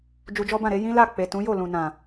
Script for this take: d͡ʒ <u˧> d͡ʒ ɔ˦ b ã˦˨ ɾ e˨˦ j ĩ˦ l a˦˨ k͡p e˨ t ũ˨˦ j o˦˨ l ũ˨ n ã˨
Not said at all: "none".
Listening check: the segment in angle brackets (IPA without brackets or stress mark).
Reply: u˧